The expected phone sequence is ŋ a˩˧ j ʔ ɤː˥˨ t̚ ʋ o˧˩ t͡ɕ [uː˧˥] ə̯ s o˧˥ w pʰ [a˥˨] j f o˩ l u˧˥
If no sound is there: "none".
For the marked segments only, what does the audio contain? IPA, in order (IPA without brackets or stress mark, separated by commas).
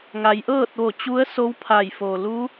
u˧˥, a˧˩